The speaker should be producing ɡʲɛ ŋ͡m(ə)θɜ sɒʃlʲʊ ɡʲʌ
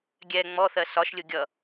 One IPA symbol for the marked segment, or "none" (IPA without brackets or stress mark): ɔ